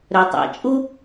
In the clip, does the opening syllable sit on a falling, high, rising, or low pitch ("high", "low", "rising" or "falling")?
low